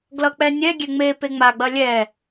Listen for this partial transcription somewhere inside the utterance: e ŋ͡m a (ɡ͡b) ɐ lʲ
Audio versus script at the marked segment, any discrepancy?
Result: no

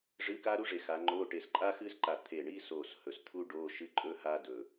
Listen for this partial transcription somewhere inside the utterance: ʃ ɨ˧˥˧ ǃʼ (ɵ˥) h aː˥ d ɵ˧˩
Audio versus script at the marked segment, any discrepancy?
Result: no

